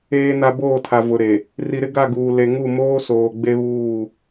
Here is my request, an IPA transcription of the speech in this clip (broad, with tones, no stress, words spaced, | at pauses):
eː˨na˨ boː˦˨tʰa˨ vʊ˨ɾe˨ | ri˨ɾɪ˦ ɡa˦˨ɡuː˨ le˨ŋu˦˨ moː˦ soː˨ɡ͡be˦βuː˦˨